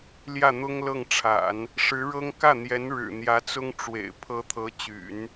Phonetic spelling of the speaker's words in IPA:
ljä˥˩n̪ʊ˥ŋlɤ˥˩ŋʈ͡ʂʰa̰˨˩˦n | ʂɻ̩˧˥ɻɤ˥ŋ kä˥˩n̪jɛ˧˥n ɻɻ̩˨˩ n̪jä˧˥t͡sʊ˥ŋʈ͡ʂwḛ˨˩ɪ̯ pʰɤ˧˥t̪ʰɤ˧˥t͡ɕy̰˨˩˦n

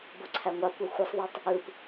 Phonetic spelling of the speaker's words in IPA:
boǀʰæŋʷɑkʷæ xʷɯsˤðˤɑtˤ | ɯp

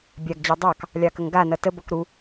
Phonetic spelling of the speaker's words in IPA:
bʲaɡd͡ʑɑ dˤɑk | lʲɑkəŋɡanʌ təbʌk ɾu

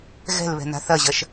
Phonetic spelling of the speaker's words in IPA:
ɣɛ̤lβɛ̤ na̤θɐʑɐʃ

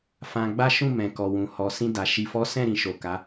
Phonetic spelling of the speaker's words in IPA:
fã˧ɡ͡ba˦ ʃũ˦˨ mɛ̃˨kɔ˨ wũ˨ hɔ˨ sĩ˧da˨ ʃi˨fɔ˨˦sɛ̃˦˨ɾĩ˨ ʃo˨ka˨˦

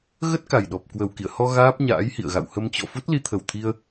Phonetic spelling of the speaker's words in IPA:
ɣə˦˥t̚ ka˨˩jɗɔ˨˩p̚ kwə˨˩wkḭ˧˨ə̯hɔ˧ ɣaː˦˥p̚ɲa̰ː˧˥jhḭ˧˨ə̯ ɣa̰˧˨whə˧mt͡ɕɔ̰˧˨ fu˦˥t̚li˧ t̪ʰə˨˩wt̪ʰi˧ə̯

